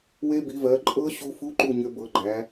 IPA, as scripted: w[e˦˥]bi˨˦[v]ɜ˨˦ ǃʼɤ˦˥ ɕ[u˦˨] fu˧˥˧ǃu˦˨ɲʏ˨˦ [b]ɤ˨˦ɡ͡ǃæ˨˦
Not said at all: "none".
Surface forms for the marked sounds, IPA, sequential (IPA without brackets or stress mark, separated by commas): e˦˥, v, u˦˥, b